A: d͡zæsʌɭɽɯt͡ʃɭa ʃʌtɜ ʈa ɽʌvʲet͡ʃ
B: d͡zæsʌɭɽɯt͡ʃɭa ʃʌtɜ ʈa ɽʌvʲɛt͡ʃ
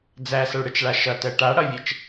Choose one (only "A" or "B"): B